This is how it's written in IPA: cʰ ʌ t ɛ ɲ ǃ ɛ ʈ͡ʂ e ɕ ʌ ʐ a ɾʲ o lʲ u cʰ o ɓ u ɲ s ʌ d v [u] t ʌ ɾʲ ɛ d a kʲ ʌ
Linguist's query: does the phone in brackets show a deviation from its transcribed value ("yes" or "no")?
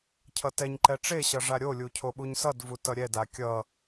no